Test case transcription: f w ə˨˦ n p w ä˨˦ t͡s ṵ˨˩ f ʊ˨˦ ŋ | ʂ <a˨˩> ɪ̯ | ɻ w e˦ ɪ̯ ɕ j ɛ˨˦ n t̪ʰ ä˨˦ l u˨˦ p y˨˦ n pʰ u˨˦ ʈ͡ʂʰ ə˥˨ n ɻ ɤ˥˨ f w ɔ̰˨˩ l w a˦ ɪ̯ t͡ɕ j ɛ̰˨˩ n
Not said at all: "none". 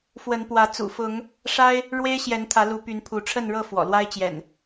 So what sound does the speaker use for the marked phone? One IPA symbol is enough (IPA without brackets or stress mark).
a˦